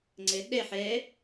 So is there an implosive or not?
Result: yes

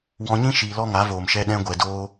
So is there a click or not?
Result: no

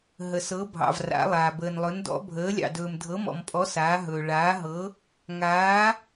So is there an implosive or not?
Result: no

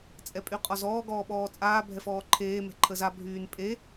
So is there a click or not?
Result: yes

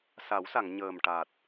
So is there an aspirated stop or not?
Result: no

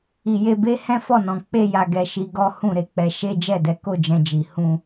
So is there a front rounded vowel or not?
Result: no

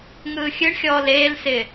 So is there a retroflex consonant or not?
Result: yes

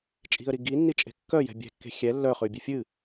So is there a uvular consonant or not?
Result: yes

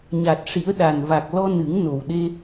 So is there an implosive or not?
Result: yes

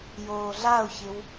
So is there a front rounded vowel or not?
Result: no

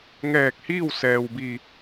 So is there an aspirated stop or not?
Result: no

